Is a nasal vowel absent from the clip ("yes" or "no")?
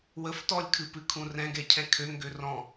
no